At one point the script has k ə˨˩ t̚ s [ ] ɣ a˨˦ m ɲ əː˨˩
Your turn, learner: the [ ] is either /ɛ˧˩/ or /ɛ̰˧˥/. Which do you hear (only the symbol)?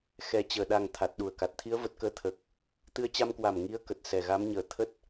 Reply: ɛ˧˩